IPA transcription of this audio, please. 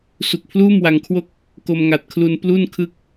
s u˨˩ k̚ pʰ l uː˥˩ m w a˧ ŋ kʰ w o˥˩ k̚ | k o˧ m ŋ a˨˩ t̚ kʰ l u˧ n p l u˥˩ n kʰ ɯ˥˩ k̚

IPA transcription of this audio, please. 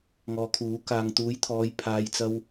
ŋ ɔː˨ kʰ uː˨˥ k aː˨ ŋ t̪ uː˨˥ j t̪ʰ ɔː˨˧ j pʰ aː˧ j t͡s ɐ˥ w

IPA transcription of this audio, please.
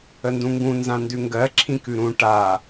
ə n d ũ ŋ ɡ ũ n z ã n d ʉ ŋ ɡ ɜ ǁʰ ĩ k ʉ ɾ ũ ʈ a

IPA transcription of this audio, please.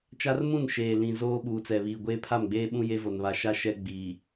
t͡ʃ a˦ r m ũ˦˨ n ʃ eː˨ l ĩ˨ z oː˦ ɓ uː˨ t͡s ɛ˨ β iː˨ ɡʷ eː˦ pʰ a˦˨ m ɡ͡b eː˦ ɓ ũ˦ j e˦ v o˨ n β a˨ ʃ a˦˨ ʃ ɛ˦ ɡ͡b iː˨

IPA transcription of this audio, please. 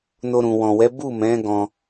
n o˧ ɾ ũ˨ w ɔ̃˨ w ɛ˨˦ b u˦˨ m ɛ̃˨˦ ɡ ɔ̃˧

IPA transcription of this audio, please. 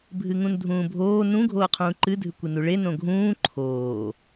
bʱ ɨ ŋ ũ n dʱ ũː bʱ oː n ũ ɡʱ oː qʰ ũː ǃ ɨ dʱ ɨ kʷ i n u ɭ e n õ ɡʱ ũː ǃʰ oː

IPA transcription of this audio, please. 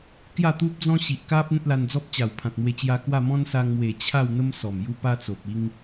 k j a˥˧ t̪ u˦ p̚ d͡z ɔ̃˦ ɕ i˨ ʔ k a˦ p̚ n̪ ẽ˦ t̚ l a˧ n d͡z ɔ˦ p̚ t͡ɕ a˨˩ w pʰ ã˨ t̚ m w e˧ t͡ɕ j a˧ k w a˥˧ m ɔ̃˦ n s a˧ ŋ m w e˨˩ t͡ɕʰ a˥˧ w n̪ ə˦ m s ɔ˨˩ m j u˥˧ p a˧ t͡s o˨ p̚ i˦ ŋ

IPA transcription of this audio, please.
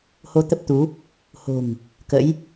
h o˧ t̪ ə˦˥ p̚ t̪ u˨˦ | h o̤˨˩ ŋ | k ə̰˧˥ j

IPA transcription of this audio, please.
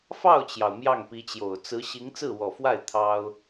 f ɑ˥˩ ʊ̯ t͡ɕ j ɑ˩ ʊ̯ m j ɑ˥˩ ŋ p i˧˥ t͡ɕ j o˨˩ ʊ̯ t͡s ɹ̩˧˥ ɕ i˧˥ ŋ t͡s ɹ̩˥˩ w ɔ˨˩ f w a˥˩ ɪ̯ t̪ʰ ɑ˥ ʊ̯

